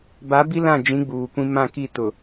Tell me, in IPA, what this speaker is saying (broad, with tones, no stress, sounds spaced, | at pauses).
b a˨˦ b i˦ l ã˦˨ d͡ʒ ĩ˨˦ ɡ͡b uː˨ kʷ ĩ˦ m ã˦˨ k i˦˨ t ʊ˨